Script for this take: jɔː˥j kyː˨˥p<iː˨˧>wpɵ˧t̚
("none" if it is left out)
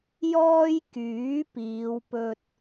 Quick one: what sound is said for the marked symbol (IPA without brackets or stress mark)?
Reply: iː˨˧